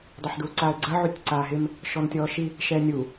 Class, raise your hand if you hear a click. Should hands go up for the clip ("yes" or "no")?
yes